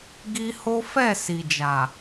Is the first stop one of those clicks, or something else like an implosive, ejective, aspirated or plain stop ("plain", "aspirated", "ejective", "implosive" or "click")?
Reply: plain